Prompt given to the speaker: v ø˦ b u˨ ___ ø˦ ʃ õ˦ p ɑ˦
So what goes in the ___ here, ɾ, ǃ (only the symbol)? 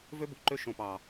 ǃ